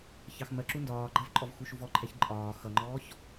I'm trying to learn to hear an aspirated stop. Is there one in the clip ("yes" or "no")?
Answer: yes